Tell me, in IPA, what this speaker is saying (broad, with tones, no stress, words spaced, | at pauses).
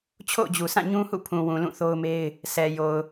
t͡ɕʰo̰˦˨ʊ̯d͡ʑu˨sʰã˦˨ ɲũ˦hṵ˦˨pʰũ˨wũ˨ lũ˦˨θo˦ʊ̯me˦ɪ̯ | sɛ˨jo˨ʊ̯